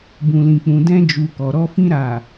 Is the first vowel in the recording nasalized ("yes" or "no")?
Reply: yes